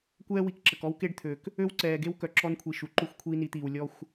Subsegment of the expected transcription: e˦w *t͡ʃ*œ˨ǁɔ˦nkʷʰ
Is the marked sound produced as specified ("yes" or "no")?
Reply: no